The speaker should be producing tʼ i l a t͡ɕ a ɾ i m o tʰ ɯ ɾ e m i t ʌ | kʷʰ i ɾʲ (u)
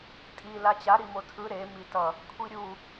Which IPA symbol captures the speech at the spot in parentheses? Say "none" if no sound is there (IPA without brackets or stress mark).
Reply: u